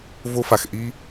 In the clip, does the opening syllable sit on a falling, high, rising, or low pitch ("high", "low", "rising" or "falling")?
high